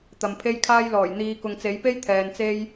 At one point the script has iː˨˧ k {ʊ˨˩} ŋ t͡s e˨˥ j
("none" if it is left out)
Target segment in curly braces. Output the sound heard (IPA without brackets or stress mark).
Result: ʊ˨